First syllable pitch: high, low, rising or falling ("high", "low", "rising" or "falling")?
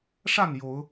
falling